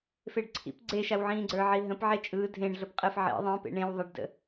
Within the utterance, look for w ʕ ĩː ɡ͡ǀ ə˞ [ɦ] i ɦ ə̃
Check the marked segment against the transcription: incorrect: ʕ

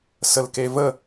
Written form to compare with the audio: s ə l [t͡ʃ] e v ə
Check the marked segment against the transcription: incorrect: k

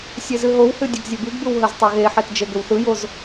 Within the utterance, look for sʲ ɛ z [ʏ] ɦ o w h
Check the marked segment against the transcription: incorrect: ɨ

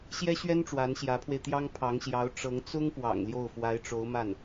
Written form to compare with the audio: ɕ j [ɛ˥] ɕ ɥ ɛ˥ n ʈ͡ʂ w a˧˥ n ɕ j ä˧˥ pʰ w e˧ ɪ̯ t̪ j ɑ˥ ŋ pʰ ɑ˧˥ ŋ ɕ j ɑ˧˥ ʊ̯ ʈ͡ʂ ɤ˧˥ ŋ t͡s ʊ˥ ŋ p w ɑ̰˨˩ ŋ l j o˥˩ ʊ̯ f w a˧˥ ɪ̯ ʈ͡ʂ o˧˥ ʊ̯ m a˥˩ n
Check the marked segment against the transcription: correct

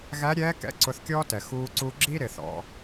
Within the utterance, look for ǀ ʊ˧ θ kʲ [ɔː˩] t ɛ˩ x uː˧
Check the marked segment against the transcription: incorrect: ɔː˥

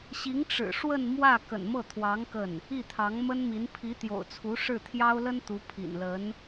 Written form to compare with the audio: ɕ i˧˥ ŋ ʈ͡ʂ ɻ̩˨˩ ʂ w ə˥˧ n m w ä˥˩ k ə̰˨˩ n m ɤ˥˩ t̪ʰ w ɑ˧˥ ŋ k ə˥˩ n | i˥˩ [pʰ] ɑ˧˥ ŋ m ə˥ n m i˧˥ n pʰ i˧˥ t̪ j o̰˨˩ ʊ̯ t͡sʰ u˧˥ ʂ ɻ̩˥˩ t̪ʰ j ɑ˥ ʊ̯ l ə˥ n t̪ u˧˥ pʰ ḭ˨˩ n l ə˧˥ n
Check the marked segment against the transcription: incorrect: t̪ʰ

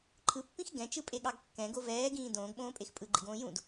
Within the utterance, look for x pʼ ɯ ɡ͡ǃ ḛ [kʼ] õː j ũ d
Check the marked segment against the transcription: incorrect: ɡ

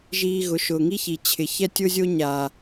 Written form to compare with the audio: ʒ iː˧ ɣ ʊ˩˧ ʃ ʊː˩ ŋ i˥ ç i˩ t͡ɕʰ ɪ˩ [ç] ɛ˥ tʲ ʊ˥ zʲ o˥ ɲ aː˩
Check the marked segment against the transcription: correct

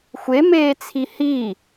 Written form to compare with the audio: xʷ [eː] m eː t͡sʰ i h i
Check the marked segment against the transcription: incorrect: e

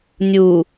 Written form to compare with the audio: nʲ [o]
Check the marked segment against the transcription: incorrect: u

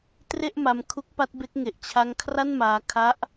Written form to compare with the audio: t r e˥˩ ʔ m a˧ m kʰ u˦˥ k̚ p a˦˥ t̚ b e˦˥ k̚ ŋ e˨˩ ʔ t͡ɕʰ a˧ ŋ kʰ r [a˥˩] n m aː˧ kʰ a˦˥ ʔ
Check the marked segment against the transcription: correct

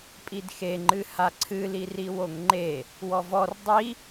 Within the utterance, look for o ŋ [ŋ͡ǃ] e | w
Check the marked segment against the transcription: correct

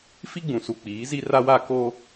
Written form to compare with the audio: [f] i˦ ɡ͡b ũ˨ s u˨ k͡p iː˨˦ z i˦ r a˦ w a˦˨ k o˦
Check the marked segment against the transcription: correct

